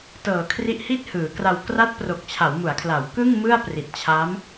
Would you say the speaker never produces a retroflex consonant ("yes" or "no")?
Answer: yes